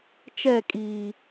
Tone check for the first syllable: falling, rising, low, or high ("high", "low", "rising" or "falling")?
falling